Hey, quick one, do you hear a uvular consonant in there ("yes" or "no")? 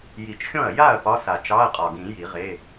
yes